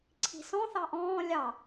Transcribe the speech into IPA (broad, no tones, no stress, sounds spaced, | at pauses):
ǀʰ i̤ s ɔ̃ θ ɑ ʔ ɔ̃ː lʲ ɑ